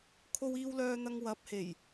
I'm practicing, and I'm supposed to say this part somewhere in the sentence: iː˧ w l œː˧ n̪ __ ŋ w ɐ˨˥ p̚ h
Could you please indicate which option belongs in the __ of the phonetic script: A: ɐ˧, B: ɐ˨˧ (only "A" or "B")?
A